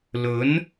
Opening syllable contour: rising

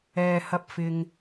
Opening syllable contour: low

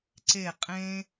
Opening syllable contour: low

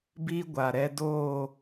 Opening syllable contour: high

